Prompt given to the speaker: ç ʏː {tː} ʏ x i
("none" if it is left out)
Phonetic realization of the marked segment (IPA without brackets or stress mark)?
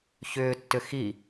tː